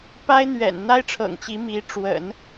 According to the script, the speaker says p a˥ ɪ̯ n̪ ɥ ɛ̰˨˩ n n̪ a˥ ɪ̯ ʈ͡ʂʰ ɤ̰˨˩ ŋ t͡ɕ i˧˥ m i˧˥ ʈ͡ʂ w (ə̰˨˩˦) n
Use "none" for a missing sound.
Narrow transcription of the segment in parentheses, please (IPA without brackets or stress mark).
ə̰˨˩˦